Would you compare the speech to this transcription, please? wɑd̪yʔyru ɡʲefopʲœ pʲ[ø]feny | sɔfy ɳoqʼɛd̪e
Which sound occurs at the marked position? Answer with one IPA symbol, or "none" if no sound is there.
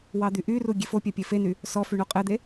e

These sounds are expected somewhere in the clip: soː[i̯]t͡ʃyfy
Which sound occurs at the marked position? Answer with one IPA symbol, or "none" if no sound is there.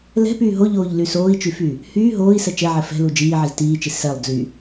i̯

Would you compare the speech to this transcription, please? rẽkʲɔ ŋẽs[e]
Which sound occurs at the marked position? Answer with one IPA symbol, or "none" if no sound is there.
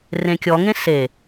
e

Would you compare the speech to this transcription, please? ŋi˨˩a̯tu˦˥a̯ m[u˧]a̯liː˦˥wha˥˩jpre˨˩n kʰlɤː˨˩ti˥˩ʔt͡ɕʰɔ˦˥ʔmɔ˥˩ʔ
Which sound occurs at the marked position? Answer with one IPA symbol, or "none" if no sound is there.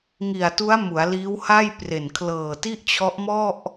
u˩˦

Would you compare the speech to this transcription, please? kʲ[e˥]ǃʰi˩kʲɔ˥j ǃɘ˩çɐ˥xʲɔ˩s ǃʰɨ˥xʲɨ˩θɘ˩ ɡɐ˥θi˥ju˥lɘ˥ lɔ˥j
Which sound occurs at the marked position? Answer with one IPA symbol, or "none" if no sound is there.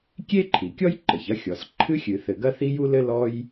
e˥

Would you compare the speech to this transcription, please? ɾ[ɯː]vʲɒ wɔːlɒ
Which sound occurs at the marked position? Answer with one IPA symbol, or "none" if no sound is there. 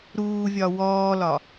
uː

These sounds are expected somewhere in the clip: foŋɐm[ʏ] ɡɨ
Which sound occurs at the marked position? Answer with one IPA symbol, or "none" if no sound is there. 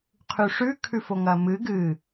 ɨ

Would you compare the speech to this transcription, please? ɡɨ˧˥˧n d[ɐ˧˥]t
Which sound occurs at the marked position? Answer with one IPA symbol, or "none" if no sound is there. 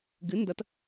ɐ˧˥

